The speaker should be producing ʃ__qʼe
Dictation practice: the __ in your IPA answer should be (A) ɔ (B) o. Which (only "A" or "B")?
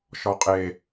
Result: A